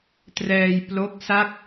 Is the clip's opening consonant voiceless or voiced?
voiceless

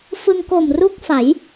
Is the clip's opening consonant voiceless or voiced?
voiceless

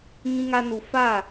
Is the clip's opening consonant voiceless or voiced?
voiced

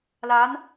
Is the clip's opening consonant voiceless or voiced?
voiced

